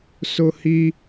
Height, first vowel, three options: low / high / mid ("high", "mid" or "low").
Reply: high